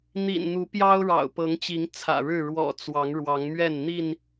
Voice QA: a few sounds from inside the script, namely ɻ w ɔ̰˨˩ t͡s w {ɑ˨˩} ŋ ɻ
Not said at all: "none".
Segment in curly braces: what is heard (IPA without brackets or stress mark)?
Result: ɑ˨˦